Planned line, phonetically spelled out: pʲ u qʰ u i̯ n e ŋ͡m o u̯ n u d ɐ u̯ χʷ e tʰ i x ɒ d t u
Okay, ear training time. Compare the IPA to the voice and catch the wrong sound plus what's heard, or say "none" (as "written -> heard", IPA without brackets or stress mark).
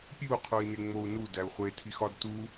ɐ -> æ